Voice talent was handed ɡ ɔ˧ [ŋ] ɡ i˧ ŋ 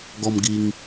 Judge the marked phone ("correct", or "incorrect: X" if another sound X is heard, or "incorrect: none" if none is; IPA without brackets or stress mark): incorrect: m